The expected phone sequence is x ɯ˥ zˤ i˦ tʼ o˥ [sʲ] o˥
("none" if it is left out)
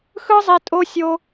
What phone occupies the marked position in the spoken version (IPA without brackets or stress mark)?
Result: sʲ